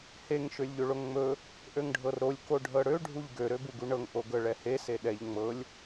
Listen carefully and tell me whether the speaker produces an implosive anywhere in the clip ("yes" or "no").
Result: yes